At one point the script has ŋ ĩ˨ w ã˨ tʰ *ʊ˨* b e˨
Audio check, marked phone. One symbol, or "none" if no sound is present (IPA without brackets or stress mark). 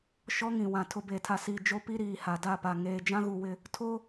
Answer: ʊ˨